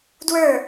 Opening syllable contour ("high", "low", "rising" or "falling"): falling